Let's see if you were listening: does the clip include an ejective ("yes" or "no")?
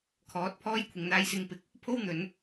no